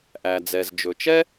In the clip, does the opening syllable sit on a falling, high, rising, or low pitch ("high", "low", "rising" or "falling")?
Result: low